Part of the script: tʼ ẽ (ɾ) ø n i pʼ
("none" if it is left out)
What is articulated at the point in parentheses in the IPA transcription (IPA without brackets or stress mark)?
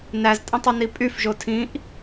tˤ